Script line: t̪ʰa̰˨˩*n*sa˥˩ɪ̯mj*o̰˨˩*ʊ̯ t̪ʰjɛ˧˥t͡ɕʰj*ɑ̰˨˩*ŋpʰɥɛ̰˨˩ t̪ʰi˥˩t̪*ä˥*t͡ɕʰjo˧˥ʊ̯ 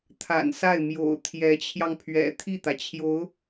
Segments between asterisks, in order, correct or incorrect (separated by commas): correct, correct, incorrect, incorrect